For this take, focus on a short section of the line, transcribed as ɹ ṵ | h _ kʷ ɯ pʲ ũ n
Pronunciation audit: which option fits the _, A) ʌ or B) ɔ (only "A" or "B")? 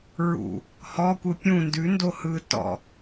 B